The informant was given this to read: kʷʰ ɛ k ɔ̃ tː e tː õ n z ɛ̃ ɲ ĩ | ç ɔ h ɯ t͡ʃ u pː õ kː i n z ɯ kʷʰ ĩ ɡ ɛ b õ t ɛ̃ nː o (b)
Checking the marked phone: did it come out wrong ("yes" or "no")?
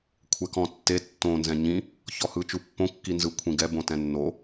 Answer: yes